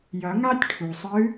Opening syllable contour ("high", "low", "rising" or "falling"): rising